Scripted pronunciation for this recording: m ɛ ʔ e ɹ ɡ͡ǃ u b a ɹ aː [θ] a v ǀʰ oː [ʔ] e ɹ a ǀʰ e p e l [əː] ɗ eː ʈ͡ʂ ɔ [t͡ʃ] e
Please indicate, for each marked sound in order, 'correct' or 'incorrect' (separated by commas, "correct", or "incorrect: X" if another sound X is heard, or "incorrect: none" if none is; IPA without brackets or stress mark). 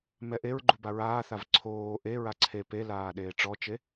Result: correct, correct, incorrect: aː, correct